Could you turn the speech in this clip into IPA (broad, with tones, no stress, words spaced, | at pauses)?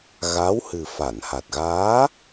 ɣa˧˥whɨ˨˩ fa˨˩˨nha˨˩t̚ɣaː˧˥